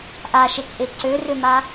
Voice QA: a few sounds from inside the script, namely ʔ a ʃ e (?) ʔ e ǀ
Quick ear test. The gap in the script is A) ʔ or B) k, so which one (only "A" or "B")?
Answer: B